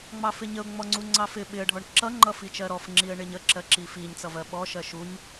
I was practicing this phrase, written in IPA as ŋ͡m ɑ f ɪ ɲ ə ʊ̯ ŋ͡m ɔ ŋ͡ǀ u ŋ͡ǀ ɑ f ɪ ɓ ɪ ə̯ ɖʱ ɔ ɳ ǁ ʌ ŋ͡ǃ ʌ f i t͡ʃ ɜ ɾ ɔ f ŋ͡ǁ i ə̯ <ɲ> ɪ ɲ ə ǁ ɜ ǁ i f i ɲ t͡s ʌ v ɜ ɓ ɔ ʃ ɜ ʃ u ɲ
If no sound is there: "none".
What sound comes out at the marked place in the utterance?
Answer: ɳ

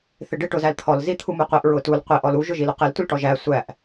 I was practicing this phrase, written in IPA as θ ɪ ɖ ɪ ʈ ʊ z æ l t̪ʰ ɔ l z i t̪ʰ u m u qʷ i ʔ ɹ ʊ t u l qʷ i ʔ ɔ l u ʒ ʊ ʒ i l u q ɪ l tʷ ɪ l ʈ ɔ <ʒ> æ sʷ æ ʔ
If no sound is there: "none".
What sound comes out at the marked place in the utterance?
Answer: ʒ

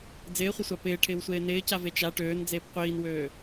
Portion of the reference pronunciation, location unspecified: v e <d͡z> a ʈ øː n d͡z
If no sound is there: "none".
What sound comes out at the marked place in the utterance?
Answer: t͡ʃ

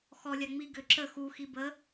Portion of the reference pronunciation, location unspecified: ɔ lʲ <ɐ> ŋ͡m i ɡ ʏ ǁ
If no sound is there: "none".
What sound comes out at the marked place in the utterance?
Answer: a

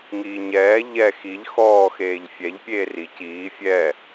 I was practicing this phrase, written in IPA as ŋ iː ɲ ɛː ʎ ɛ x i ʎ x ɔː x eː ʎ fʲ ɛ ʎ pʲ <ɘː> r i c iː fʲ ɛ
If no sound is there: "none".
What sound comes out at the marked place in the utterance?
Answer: eː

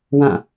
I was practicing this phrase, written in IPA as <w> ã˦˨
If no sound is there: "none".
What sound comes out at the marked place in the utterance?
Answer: w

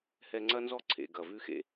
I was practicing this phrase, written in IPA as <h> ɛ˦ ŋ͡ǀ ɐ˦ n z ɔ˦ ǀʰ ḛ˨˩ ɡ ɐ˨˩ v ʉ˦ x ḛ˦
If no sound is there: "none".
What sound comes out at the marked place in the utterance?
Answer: h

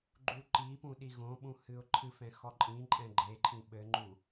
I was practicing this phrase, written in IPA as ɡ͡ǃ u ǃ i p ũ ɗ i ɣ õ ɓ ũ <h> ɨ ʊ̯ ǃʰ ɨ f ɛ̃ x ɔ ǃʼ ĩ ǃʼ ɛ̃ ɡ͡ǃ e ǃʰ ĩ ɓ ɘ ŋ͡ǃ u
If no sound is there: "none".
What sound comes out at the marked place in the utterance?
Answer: h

